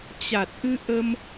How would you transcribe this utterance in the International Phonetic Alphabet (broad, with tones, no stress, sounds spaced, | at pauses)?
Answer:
t͡ɕ a˨˩ t̚ ʔ ɨ˧ ʔ ə˧ m